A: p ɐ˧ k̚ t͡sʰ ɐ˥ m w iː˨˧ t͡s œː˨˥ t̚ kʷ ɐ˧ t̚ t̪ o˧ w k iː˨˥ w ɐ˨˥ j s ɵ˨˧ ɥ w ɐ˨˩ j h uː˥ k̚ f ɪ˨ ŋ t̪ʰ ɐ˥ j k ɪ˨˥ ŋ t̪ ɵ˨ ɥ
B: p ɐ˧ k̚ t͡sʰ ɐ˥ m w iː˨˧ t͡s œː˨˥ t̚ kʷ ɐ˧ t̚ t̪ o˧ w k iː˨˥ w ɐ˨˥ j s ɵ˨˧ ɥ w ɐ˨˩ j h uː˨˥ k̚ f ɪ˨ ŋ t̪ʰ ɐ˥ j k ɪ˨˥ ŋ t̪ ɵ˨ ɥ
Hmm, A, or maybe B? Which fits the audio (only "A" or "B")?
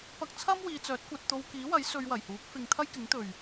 B